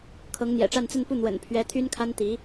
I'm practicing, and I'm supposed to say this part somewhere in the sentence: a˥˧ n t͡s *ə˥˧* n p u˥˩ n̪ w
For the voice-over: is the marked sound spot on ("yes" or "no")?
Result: yes